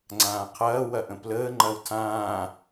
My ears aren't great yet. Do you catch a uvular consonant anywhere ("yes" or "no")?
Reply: yes